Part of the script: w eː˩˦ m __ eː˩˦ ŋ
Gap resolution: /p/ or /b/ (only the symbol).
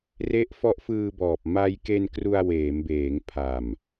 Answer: b